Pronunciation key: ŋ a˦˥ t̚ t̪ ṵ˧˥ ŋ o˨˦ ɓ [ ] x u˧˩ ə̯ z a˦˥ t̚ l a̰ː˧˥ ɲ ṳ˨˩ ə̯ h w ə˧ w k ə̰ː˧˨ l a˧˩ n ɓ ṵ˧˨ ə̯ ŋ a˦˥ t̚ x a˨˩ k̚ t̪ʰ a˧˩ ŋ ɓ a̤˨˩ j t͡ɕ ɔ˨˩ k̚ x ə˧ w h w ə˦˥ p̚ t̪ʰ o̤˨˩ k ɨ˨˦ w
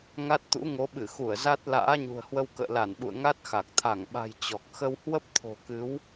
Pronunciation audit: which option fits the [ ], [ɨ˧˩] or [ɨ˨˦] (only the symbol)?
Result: ɨ˧˩